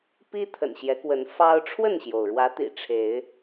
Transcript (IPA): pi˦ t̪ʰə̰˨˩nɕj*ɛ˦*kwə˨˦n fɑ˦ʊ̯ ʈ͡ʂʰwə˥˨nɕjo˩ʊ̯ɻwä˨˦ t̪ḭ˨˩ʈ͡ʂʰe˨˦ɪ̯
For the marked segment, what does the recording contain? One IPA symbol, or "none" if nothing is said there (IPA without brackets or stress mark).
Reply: ɛ˨˦